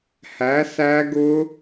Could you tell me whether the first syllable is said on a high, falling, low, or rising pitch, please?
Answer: rising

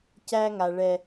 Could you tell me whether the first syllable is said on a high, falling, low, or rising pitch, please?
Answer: high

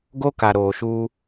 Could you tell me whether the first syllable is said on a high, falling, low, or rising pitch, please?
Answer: high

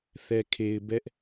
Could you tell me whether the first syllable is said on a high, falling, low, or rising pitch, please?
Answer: low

